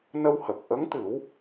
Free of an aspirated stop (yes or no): yes